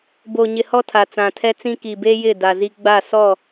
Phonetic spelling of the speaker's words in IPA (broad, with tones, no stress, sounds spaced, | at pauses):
b o˨ ɲ ɪ˨ h ɔ˦ tʰ a˨ t͡s ã˨ tʰ ɛ˦ t͡s ĩ˦ k i˨ b e˦ j ɪ˦˨ d a˨ z i˦ ɡ͡b a˦˨ s ɔ˦˨